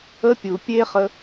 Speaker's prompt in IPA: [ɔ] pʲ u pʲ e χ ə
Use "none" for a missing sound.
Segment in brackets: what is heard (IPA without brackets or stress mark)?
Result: ə